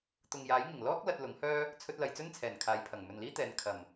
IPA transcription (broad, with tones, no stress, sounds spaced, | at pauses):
t̪ ʊ˨ ŋ j aː˨˥ j ŋ ɪ˨˩ ŋ l ɔː˥ k̚ l ɐ˧ t̚ l ʊ˨˥ ŋ h œː˥ | t͡sʰ ɵ˧ t̚ l ɐ˨ j t͡s ɵ˥ n t͡sʰ ɛː˨˩ n kʰ aː˨˧ j pʰ ɐ˨˩ ŋ m ɵ˨ n l iː˥ t̪ ɛː˨˧ n kʰ ɐ˨˩ m